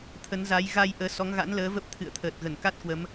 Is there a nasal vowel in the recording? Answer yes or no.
no